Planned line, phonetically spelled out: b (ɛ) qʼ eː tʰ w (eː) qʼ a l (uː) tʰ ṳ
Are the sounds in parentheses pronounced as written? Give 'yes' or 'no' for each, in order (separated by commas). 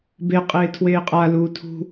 no, yes, yes